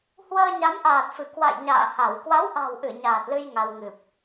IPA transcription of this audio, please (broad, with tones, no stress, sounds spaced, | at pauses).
h w əː˧ ɲ a˨˦ m ʔ aː˨˩ t̚ f ɨ˧˩ k w a̰˧˨ j ɲ a̰ː˧˨ h a˧˩ w k w a˨˦ w ʔ a̤˨˩ w ʔ ɨ˧˩ ɲ aː˨˩ t̚ l ɨ˧ j ŋ a˧ w ŋ ɨ˨˩ p̚